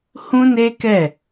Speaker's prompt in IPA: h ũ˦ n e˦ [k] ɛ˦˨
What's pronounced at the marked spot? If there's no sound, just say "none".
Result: k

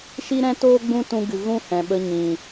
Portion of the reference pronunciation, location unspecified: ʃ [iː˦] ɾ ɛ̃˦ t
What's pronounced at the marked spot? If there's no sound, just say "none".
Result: i˦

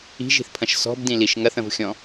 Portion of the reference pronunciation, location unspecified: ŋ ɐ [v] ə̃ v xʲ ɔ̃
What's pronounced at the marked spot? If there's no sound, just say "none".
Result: θ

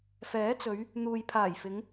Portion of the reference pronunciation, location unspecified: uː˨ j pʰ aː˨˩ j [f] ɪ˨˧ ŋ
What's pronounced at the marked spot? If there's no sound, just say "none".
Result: f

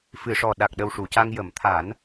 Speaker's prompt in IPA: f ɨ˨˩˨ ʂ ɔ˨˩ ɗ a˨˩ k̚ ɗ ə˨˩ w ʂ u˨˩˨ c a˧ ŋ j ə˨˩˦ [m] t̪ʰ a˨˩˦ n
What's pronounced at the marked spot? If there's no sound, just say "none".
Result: m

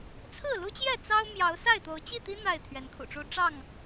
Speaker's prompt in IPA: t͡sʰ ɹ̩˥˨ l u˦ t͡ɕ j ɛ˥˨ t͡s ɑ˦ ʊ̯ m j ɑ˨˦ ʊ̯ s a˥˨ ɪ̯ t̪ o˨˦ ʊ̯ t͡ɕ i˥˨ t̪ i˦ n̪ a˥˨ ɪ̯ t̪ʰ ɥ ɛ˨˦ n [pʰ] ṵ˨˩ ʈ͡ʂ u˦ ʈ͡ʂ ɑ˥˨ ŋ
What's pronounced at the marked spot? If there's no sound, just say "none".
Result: kʰ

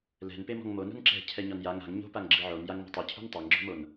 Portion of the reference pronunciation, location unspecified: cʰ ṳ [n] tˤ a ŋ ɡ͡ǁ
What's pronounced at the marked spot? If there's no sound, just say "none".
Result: n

